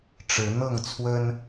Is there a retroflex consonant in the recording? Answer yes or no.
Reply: yes